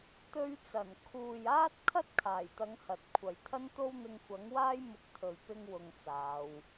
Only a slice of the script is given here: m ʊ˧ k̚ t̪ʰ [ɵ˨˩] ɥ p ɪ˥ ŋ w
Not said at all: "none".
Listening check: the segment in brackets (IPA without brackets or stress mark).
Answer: ɵ˨